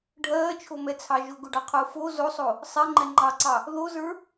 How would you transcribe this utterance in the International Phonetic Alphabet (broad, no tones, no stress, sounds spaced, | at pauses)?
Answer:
ɖʱ ɜː t͡ʃʰ o m ɛ t͡sʰ ɑ ʒ ʊ ɡ ʊ ɖ ɑ qʰ ʊː f o z o sˤ o | sˤ ɛ ŋ͡ǃ ɛ ŋ͡ǃ ɑ ǀ ɑ | ð o z ə˞